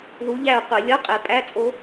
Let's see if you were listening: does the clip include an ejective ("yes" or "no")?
yes